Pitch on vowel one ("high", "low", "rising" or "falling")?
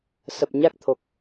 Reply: low